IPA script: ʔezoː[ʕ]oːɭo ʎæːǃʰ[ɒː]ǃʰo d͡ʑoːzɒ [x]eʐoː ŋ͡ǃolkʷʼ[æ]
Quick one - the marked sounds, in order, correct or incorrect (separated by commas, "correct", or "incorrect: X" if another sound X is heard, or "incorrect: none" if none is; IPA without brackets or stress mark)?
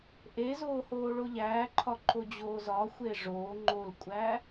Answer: incorrect: h, incorrect: ɒ, incorrect: xʷ, correct